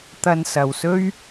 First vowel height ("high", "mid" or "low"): low